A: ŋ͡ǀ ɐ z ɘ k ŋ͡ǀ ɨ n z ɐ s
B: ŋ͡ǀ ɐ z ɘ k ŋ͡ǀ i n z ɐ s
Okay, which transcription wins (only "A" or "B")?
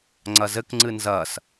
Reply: A